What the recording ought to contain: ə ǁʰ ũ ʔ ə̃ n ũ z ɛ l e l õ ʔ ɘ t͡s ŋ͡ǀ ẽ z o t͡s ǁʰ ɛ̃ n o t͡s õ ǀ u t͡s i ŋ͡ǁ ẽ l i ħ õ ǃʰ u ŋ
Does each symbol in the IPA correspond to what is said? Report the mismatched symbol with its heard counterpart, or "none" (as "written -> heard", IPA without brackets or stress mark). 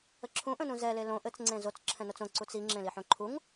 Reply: none